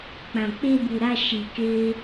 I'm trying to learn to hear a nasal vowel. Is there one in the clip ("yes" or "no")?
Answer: yes